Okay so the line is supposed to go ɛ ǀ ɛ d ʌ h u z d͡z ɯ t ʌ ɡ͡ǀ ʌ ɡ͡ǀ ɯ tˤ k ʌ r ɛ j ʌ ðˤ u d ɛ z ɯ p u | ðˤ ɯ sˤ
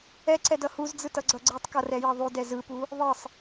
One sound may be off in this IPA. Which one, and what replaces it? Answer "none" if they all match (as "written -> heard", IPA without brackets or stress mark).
none